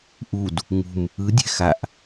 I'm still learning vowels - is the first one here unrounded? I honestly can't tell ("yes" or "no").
no